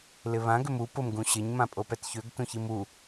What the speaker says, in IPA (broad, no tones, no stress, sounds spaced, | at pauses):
l ɪ β ã ɡ ʏ m u p ʊ m ɡ ũ ɕ ɪ ɲ m ã pʼ o p ɛ t ç ø ɡ t ũ ç i m u